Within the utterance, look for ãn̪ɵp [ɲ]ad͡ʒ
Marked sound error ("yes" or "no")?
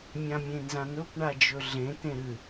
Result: yes